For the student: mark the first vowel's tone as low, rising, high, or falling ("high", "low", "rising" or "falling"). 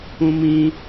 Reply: high